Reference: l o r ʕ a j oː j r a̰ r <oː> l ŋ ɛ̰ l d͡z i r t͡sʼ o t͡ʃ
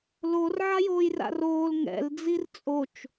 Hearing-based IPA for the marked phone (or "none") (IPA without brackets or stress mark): oː